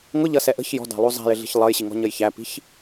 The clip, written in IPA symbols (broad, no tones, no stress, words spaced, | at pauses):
ŋʊʎʌsɛ ʔə̤ç jɔ̤dɑ̤lˠu zˤæ̤jɪɮi̤ç lˠʌjɕiŋɔ̤ɲəj çæpi̤ç